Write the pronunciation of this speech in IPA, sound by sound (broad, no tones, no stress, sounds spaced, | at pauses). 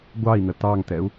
ɡʷ ɑ i̯ n̪ ə t̪ ɑ ŋ t̪ ɛ u̯